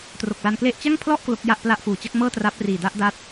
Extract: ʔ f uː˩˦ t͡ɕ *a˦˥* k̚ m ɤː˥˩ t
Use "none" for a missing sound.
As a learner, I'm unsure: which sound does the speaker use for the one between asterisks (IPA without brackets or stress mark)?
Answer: a˦˥